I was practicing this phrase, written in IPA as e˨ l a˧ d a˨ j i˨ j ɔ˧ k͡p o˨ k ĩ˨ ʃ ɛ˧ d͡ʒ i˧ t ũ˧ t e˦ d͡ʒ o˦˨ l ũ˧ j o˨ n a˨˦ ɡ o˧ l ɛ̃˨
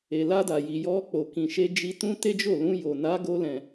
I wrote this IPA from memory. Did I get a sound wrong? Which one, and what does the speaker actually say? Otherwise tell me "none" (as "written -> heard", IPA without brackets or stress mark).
ɛ˧ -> e˧